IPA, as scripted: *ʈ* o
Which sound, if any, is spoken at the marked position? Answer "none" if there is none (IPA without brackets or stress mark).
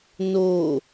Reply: n